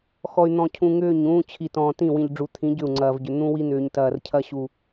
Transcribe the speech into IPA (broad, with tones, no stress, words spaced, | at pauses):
xɔ˨y̯n̪ɔ̃˨cʰũ˨ ŋʏː˦˨ɲ ũː˦t͡ɕʰi˨tɔ̃ː˨ tĩ˦˨wĩ˨ʎɖ͡ʐu˨t̪ʰĩ˨˦ ɟʏ˦˨u̯ŋ͡ǀɐː˨vɟʏ˨ n̪ũ˦wi˦n̪ʏː˨ɲ tɐː˨rcʰɐ˦ɕu˨